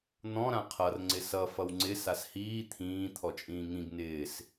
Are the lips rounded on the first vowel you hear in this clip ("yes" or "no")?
yes